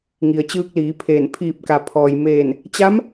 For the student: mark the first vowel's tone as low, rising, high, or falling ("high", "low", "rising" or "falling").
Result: low